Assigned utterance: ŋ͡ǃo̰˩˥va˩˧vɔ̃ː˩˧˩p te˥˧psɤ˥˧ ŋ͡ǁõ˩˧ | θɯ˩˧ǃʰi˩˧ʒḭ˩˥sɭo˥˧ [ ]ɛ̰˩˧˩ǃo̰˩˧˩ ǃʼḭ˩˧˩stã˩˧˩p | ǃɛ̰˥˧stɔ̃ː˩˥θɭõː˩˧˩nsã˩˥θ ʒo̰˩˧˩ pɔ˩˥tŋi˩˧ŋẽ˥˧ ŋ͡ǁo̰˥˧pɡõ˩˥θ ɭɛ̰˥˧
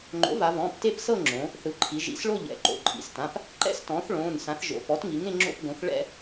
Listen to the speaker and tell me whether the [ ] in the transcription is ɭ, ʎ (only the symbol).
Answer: ʎ